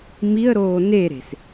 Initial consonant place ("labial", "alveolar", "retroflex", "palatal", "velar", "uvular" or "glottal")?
labial